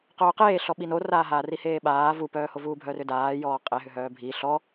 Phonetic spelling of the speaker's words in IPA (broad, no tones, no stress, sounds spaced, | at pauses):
q œː q eː ɬ ɔ ɓ i n o r aː ɦ aː r i h eː ɓ aː v u p œː h o v uː bʱ œ r ʏ d aː j ɔː qʼ e ɦ ʏ ɦ œː bʱ i ɬ ɔ